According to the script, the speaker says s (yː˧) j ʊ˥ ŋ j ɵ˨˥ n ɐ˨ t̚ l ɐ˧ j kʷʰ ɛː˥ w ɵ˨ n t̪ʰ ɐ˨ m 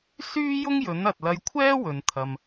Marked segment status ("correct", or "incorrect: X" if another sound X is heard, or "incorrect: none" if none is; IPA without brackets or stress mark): incorrect: yː˥